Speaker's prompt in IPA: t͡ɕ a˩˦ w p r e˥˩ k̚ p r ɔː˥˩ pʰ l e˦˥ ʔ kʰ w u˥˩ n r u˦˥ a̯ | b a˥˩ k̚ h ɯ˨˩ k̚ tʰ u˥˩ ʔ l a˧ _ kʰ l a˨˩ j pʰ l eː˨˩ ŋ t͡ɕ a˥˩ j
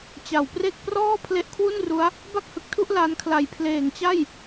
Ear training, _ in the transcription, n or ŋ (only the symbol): n